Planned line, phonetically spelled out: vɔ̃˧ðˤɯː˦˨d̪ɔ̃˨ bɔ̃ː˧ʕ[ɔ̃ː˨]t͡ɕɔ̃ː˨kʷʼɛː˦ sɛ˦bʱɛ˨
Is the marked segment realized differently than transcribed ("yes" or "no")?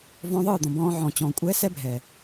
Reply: no